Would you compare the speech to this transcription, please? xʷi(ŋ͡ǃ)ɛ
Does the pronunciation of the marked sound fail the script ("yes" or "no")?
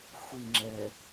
yes